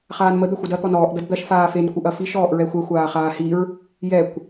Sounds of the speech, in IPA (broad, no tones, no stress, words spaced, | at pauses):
χaːnmə d̪ɐxʷɐdɐ t̪ɔnɔːʔ dʌdd̪ɐʃ faːfen kʷɯʔɐfiʃ ɔːʔɹɛxʷɛ xʷaːχaːhiɹ | jɛkʷ